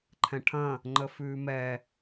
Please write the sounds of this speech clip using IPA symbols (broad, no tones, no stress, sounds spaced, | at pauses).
ǃʰ ɛ̃ ʈʰ ɐ̃ | ŋ͡ǃ ə f ʉː m ɛ